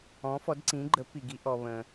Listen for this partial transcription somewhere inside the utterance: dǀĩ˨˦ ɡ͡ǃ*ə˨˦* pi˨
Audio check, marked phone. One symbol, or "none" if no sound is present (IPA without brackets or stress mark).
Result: ə˨˦